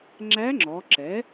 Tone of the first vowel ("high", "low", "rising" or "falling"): rising